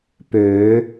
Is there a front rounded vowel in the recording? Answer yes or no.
yes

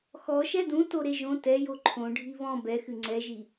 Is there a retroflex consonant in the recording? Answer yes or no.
yes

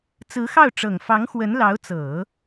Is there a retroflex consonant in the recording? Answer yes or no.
yes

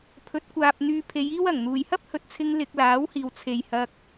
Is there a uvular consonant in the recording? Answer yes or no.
no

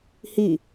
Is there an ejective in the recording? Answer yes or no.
no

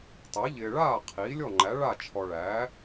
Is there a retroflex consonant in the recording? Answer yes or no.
yes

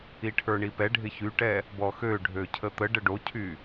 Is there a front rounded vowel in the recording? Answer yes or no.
yes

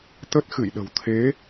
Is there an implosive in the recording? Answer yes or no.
yes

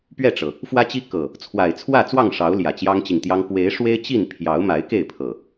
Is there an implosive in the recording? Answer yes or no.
no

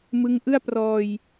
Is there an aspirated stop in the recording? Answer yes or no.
no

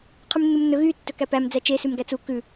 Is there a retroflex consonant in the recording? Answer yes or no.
no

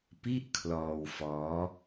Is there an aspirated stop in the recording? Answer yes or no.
yes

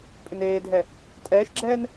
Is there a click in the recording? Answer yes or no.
yes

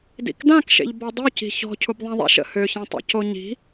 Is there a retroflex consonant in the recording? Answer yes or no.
no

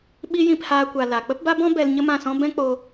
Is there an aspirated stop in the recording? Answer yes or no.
no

